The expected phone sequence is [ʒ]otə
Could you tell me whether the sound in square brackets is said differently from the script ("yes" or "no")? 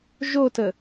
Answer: no